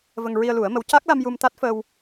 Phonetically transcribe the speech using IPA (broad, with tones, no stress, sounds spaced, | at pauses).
v ə˧ ŋ ɹ i˧ ə̯ l u˨˩˦ ə̯ m ə˧˥ w c a˦˥ k̚ l a˧ m j u˧ m t̪ a˦˥ t̚ f ə˧ w